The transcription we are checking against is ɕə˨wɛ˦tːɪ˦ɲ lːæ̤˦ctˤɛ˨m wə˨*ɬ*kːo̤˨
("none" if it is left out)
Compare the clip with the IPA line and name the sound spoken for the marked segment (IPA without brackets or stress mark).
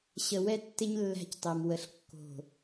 ɬ